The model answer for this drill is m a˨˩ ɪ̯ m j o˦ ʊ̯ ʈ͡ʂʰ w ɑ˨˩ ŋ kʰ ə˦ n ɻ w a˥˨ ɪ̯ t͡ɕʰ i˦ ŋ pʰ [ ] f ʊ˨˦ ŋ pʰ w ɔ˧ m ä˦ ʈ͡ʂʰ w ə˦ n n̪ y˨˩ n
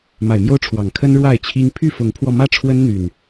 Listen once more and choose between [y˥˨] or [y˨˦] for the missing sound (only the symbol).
y˥˨